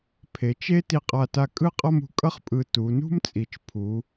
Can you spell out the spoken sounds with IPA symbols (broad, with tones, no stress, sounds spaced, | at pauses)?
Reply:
pʰ e˩˧ t͡ʃ e˥ t i˧ qʼ a˧˩ t a˧ kʼ ɯ˥˧ qʼ ʌ˥˧ m ṳ˧˩ kʼ ʌ˥ χ pʼ ɯ˧˩ t u˩˧ n ṳ˥ m t͡sʼ i˧˩ t͡ʃ pʰ u˩˧